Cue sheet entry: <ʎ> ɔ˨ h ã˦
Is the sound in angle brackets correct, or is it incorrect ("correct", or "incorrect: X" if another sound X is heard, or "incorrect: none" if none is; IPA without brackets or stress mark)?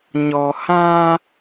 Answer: incorrect: ɲ